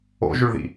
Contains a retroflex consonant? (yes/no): yes